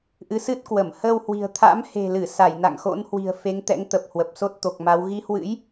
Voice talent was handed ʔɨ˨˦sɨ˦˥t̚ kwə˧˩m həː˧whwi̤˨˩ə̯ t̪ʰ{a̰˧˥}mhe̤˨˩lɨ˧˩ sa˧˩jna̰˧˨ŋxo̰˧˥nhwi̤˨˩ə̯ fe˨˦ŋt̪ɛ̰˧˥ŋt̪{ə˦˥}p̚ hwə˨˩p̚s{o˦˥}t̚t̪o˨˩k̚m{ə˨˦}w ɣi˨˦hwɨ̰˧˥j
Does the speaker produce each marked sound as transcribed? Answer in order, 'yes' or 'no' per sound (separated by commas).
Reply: yes, no, yes, no